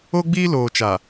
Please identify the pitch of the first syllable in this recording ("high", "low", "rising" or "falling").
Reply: high